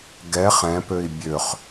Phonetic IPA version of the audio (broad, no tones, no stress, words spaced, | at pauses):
ɡɛχ ɛ̃pøi̯ bʲøχ